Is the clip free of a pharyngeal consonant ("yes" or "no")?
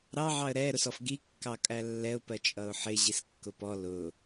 no